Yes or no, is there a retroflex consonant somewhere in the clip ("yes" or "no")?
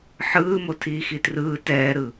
no